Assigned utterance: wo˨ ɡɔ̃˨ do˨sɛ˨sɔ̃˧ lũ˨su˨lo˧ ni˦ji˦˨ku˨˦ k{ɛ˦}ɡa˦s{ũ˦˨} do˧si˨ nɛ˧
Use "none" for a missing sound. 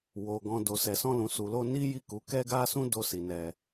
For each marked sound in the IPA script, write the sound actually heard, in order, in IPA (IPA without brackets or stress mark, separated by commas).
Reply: ɛ˦, ũ˦